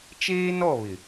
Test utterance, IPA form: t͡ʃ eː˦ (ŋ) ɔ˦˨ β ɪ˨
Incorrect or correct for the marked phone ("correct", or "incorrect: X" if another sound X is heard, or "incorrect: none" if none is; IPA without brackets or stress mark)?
incorrect: n